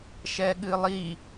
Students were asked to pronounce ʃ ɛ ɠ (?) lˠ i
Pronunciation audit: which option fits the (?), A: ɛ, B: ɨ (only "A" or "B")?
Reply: B